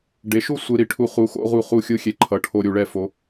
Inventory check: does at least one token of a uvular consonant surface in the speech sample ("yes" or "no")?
yes